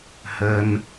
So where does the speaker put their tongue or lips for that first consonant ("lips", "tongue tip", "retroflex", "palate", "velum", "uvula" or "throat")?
throat